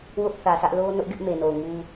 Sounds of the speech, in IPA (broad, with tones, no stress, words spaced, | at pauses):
wʊ˦ʔθä˨sʰä˦ʔ lo˦ nʊ˦ʔɡɪ˦ʔ me˨no˨ʊ̯ŋu˦